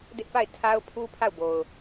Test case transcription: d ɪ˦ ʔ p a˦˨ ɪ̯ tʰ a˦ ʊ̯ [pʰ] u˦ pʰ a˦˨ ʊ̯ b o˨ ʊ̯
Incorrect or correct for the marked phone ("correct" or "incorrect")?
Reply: correct